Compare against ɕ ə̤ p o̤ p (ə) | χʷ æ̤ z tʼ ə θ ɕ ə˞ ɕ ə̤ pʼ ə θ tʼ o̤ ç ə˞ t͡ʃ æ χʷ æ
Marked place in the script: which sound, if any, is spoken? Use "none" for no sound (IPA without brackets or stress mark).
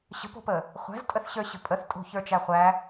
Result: ə